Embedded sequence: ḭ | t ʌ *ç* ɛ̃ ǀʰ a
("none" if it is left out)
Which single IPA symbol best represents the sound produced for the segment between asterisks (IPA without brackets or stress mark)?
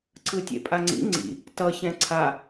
ç